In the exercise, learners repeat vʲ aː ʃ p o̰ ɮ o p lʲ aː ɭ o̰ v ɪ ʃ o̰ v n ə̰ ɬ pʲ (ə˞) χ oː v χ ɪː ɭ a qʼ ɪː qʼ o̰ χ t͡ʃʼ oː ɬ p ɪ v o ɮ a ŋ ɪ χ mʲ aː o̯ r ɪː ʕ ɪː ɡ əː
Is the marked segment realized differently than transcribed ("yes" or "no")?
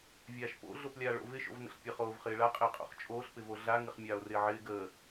yes